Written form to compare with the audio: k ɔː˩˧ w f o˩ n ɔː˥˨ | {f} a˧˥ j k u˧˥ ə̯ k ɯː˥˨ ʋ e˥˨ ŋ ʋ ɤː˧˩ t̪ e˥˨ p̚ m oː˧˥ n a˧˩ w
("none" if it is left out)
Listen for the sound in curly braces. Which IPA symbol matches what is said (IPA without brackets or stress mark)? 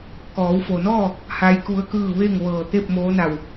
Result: h